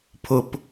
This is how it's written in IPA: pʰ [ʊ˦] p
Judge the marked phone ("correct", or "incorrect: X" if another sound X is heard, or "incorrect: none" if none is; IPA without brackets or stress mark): correct